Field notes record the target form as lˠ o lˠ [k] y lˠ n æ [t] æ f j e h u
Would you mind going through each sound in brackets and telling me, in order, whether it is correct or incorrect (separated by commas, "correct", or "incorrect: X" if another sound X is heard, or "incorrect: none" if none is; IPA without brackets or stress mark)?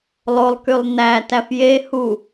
correct, correct